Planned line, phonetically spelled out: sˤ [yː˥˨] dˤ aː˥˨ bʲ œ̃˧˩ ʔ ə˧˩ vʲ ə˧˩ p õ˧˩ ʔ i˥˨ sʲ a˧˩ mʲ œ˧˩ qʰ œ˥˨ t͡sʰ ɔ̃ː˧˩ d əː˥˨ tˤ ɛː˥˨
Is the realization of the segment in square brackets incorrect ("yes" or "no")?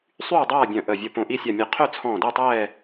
no